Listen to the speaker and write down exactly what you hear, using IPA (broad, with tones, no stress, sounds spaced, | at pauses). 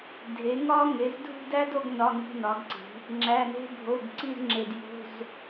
dʱ e˩˥ ŋ ɒ˥ ŋ e˩˥ z dʱ ṳ˥˧ d æ˥ d o˥˧ ɡ n ɒ˧˥˧ ŋ i̤˧˥˧ n ɒ˩˥ ɡ ǀ i̤˩˥ | ŋ͡ǁ æ˧˥˧ n e̤˥ bʱ o˧˥˧ ɡ ǀ i˥˧ z ŋ͡ǁ e˧ d j o̤˧˥˧ z